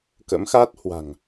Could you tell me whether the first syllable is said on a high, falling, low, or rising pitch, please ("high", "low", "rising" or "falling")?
rising